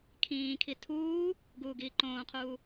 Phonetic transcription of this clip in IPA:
kʰ ĩː kʰ i tʰ uː | ɡ uː ɡ iː ǃ õː qʰ uː

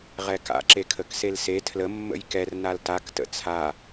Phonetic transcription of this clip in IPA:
ʁ ɛ k a̰ ǁ e kʰ ə k s e l s e tʰ l ə mː ə̰ j k ɛ r n a l t a k t ə̰ t͡sʰ a

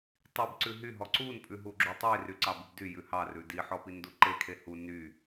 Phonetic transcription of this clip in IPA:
tˤ i b ǀ ʉ ɦ y ɦ ɔ ǀ u n pʼ ʉ ɦ u ɡ͡ǁ u tˤ i r y ǀ ɑ b y b d y j ʉ h ɑ r ʉ d i ħ ɔ p i n d u ǃ e kʰ e h u n y

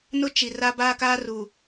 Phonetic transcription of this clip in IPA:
n ʊ˦ t͡ʃ i˨ r a˦ b aː˦ k aː˦ r u˨

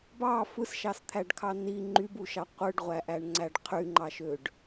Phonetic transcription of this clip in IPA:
b ɑ f ɯ s ʃ ɑ s t̪ʰ æ ɖ kʰ ɑ n i ŋ͡ǃ y b u ʃ ɑ qʷ ɯ ɖ ʁʷ æ ʔ æ ɳ ŋ͡ǀ æ ɖ qʰ y ŋ͡ǃ ɑ ʃ ø ɖ

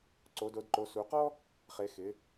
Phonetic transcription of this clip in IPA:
ǀ o˨˦ d o˨˦ d ǃ o˨˦ s u˨˦ q ɔ˥ | χ e˨˦ x ɪ˨˦

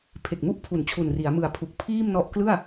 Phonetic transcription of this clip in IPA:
pʰ e˨˩ k̚ m u˥˩ ʔ pʰ u˩˦ n t͡ɕʰ u˨˩ n r i˩˦ a̯ m ɯ˨˩ a̯ pʰ u˨˩ k̚ pʰ iː˥˩ m n ɔ˦˥ ʔ k l ɯ˥˩ a̯

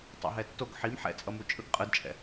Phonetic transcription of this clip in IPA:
tˤ o̰ ɦ ɛ tː o ɡ ħ i m ħ ɛ̰ t͡sʼ ʌ m u t͡ʃʼ ɯ ɡ qʼ ɯ d t͡ʃʼ ɛ̰

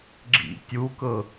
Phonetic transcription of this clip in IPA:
ɡ͡ǁ ḭ tʲ u k ɤ

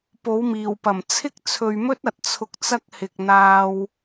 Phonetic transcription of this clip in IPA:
p o˨˥ w m iː˨˩ w p ɐ˨˩ m t͡sʰ ɪ˥ k̚ t͡sʰ ɵ˨ ɥ m ɵ˥ t̚ ɐ˨ t̚ t͡sʰ ʊ˧ k̚ t͡s ɐ˥ k̚ h ɪ˨ k̚ n̪ aː˧ w

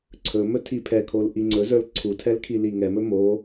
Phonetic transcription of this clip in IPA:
ǀʰ ɵ m ɵ tʰ i pʰ ɛ kʰ o l ʔ i ŋ͡ǀ ɵ z ə˞ l ǀʰ u tʰ ɛ l kʰ i l i ŋ ɛ m ɵ m o

